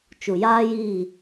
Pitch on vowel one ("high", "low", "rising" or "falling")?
low